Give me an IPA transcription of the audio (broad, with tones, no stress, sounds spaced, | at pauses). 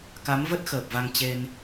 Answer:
k a˨˦ m v ə˦˥ t̚ x əː˨˩ p̚ v a˧ ŋ t͡ɕ e˧ n